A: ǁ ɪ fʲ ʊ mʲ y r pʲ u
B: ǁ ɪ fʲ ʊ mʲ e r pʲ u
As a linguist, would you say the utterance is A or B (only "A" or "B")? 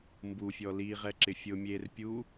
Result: B